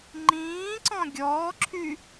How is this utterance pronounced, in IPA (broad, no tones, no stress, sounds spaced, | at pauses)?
ŋ͡ǃ ĩː ǀ ɔ̃ ɡʲ ɔː ǁʰ y